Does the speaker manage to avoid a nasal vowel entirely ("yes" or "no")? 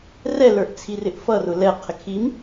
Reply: yes